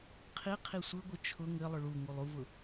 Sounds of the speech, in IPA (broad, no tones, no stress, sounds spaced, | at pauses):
qʰ i qʰ i sʷ ɘ ɡʷ ɘ t͡ʃʰ ʊ ŋ ɘ lˠ ʊ ɭ u ŋ u lˠ u v ʊ